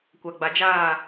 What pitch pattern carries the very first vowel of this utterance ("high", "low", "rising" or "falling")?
low